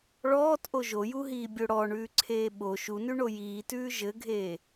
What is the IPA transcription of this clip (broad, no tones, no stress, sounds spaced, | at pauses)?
ɭ ɔː t ʔ o ʒ o j u ɦ iː bʲ o ɽ ɔ ɳ ʉː ǀʰ eː ɓ o ʃ u n ʉ ɳ o j iː t ʉː ʒ ɘ ɡʱ eː